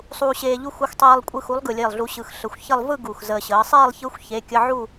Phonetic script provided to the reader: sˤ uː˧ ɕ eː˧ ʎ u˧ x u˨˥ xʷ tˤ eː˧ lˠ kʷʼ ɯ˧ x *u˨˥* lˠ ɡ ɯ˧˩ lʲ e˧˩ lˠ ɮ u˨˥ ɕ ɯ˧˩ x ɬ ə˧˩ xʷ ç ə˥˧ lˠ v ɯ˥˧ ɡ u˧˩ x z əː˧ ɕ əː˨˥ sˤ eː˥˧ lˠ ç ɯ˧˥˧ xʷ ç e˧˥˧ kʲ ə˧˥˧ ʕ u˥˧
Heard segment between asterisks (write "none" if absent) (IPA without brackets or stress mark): u˨˥